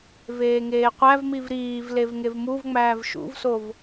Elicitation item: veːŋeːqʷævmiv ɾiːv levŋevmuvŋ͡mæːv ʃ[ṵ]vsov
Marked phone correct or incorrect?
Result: correct